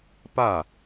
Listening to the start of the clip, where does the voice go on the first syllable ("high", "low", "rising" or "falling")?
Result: falling